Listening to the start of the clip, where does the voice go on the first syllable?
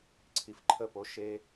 low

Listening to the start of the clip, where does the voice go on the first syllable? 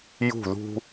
falling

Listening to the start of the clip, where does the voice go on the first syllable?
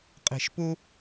low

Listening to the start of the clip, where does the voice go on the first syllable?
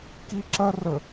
high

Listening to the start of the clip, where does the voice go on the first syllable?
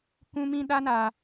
high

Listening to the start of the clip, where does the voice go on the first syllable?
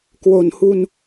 low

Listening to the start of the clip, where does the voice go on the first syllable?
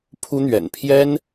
high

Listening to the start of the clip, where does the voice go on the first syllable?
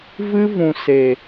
high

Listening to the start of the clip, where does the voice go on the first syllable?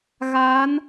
rising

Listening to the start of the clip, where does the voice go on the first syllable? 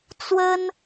high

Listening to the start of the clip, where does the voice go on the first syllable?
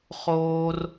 low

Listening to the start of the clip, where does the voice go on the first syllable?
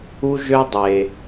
high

